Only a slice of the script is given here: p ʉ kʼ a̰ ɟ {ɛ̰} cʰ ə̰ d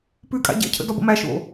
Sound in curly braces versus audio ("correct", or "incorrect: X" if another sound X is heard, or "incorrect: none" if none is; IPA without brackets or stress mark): correct